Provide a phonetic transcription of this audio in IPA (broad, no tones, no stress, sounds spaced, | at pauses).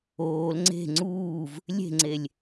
oː l ŋ͡ǀ e̤ ŋ͡ǀ uː v | lʲ e̤ ŋ͡ǀ e lʲ